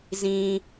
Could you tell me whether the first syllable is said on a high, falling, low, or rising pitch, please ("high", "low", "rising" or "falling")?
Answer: low